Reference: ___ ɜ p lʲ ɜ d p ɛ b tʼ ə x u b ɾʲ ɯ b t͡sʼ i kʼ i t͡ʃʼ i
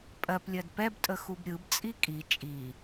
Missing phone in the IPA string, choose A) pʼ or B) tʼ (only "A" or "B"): A